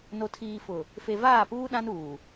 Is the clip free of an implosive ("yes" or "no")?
no